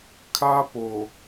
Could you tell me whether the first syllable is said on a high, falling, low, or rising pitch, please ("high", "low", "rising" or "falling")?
high